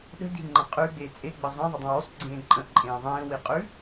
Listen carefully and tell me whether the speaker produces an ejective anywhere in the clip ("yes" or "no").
yes